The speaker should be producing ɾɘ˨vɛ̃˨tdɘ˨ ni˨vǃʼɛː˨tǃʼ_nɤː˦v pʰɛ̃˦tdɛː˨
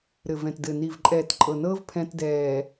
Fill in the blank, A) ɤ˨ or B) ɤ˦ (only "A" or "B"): A